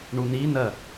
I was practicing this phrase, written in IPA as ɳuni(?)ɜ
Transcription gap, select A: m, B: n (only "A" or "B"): B